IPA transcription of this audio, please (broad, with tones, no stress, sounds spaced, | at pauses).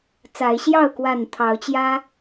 t͡s a˨˦ ɪ̯ ɕ j ɑ˥˨ ʊ̯ k w a˥˨ n t̪ʰ ɑ˨˦ ʊ̯ t͡ɕ j ä˦